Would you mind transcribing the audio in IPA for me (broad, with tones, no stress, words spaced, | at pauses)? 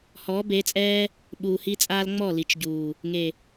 hɔː˨˦be˨˦t͡sʼɛː˦ | ɓuː˨hi˦t͡sʼaː˦l ŋ͡mɔ˦˨li˨t͡ʃɟuː˨ | ŋe˨